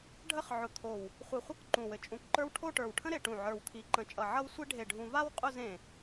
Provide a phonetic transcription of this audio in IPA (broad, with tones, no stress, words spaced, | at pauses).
ɖʱə˥˧χ ʕʊ˧t̪ʰo˧˩w | χʷi˧˩χʷʌ˥k ǃũ˧˩wɘ˧ t͡ʃʼũ˧kǃə˞˥w ʈʰo˥˧ʈə˞˧˩wʈʰə̃˥ ɾe˧ʈũ˧˩ʕə˞˧˩wt̪ʰi˧ ǃə̃˧˩t͡ʃʼʌ˧˩ ʕʌ˥wsʷi˥ɖʱe˧˩ɖʱũ˧ va˥wqʼʊ˥˧z ẽ˧˩